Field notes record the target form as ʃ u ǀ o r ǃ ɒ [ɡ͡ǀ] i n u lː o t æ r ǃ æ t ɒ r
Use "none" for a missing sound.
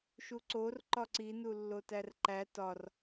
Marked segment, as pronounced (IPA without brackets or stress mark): ǀ